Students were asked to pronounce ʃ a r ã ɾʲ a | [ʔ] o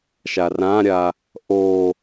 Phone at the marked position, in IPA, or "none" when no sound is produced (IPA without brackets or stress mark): ʔ